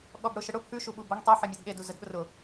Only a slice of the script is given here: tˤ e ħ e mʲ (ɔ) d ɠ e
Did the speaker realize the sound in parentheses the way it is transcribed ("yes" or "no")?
yes